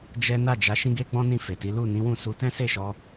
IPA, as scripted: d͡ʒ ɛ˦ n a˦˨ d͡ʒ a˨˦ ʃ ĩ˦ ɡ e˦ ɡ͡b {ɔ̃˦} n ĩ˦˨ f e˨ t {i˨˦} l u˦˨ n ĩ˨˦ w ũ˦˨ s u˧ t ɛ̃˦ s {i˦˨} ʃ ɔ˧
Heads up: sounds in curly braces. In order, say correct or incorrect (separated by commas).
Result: correct, correct, incorrect